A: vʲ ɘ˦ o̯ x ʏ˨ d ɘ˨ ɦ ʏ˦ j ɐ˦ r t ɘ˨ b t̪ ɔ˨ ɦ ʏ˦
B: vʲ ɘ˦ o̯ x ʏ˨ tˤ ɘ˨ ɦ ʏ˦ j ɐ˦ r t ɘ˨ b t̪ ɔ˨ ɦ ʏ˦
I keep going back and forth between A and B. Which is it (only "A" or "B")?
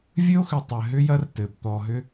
B